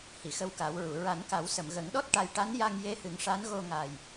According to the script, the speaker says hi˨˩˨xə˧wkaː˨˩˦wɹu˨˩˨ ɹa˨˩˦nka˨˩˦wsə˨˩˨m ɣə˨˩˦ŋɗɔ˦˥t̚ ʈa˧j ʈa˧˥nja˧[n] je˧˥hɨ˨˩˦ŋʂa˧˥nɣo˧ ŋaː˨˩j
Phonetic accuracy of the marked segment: incorrect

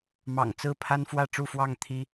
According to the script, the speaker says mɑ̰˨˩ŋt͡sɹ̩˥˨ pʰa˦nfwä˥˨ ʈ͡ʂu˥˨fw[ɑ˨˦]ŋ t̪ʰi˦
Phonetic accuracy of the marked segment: incorrect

